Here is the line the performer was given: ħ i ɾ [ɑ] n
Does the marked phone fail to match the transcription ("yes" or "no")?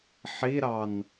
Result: no